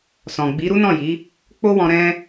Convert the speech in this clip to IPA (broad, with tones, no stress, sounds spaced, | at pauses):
s ɔ̃˨ ɡ͡b i˨˦ ɾ u˦ n ɔ̃˦˨ j i˨˦ | k͡p o˦ w ɔ̃˧ ɾ ɛ̃˧